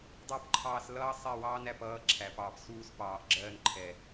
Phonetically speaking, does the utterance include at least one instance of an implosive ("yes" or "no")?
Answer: no